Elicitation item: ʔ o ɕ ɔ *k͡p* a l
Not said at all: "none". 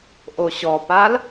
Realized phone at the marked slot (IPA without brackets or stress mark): p